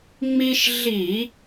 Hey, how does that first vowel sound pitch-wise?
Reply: high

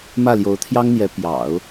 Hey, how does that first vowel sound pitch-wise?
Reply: falling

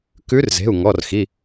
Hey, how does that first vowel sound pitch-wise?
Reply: rising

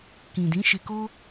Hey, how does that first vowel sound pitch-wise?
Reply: low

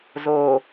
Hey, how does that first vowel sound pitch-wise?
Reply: low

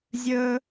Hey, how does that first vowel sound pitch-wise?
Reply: high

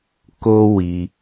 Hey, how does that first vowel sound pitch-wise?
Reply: high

